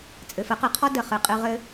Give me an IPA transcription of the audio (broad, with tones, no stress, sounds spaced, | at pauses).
t͡sʼ ɘ˨ f ə˨˦ q ɨ˨ qʰ ɔ˦ d ə˨ χ ɨ˨ qʼ ɨ˧ ʁ ɘ˧